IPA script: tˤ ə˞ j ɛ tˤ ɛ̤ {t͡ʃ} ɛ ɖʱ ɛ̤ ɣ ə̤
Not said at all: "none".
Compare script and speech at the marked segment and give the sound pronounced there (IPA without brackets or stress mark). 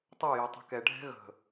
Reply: k